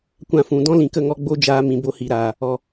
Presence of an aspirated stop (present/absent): absent